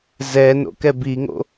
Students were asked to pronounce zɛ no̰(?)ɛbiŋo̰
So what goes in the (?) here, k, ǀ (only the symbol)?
k